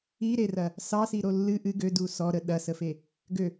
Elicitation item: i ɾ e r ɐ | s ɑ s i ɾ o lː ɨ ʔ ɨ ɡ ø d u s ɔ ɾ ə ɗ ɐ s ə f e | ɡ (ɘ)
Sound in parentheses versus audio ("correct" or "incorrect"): incorrect